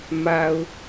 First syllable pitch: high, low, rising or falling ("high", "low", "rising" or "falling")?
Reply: low